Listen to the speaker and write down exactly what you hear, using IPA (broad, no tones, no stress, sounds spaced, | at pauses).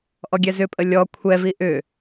ʔ ɔ ɡʲ ɛ z ʏ pʼ ə lʲ ɔ kʷʰ ɛ v i ʔ ʏ